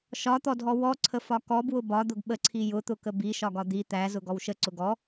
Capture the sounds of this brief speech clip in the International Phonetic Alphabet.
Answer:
ʃɒt̪ɔdʱɔ wɔǀʰəfɒ kɔbwʊ bɒd̪ʊɡ ɓəǀʰi jʊt̪ʊkə biʃɒɡɒ d̪i t̪æzʊɡɔw ʃəǀʊ ɡɔ

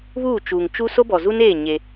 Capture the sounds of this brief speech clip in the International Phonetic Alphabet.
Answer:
βuː˦˨t͡ʃuː˨ŋt͡ʃu˦ so˦bɔ˨zu˦neː˦˨ ɲe˦

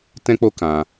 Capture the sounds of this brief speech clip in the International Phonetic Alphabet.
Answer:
tɛ̃˦k͡po˦ kã˧

